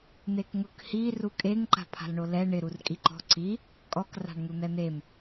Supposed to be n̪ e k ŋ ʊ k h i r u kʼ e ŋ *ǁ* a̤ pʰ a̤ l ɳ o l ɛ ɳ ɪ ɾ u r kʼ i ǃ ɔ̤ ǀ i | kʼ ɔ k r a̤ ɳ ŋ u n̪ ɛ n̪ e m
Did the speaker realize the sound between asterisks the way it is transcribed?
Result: no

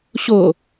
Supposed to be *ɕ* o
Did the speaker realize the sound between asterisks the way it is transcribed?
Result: yes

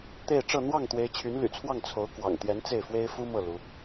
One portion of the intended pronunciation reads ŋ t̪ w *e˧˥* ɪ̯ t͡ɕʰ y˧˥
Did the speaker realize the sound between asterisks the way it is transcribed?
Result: yes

